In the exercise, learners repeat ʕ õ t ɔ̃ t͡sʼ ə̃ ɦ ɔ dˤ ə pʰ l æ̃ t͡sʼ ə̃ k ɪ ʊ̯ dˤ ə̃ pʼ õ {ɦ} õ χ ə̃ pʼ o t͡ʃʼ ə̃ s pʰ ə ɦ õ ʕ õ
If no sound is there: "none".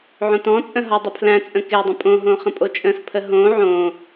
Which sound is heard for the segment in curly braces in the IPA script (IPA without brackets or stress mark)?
ɦ